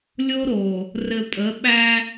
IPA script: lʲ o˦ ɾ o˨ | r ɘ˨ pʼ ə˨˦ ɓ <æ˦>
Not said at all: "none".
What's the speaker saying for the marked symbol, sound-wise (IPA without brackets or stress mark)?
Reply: æ˦